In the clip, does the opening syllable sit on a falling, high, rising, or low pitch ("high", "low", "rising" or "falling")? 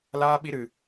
high